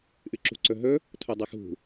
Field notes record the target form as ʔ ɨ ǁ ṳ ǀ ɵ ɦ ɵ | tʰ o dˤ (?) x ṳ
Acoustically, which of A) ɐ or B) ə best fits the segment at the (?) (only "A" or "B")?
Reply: A